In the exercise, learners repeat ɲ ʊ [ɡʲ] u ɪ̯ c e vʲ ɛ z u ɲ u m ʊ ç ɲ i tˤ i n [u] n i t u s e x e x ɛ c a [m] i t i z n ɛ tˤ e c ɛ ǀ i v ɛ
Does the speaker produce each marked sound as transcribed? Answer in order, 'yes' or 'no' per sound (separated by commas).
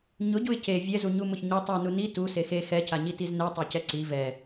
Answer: no, yes, no